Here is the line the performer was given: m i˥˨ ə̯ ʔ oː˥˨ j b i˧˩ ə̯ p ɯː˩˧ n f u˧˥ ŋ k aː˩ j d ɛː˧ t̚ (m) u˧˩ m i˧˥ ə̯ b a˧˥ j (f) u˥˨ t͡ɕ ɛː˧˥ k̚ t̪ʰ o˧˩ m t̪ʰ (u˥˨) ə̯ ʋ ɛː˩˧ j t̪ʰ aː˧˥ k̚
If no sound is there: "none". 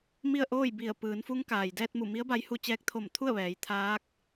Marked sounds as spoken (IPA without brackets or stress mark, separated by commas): m, h, u˥˨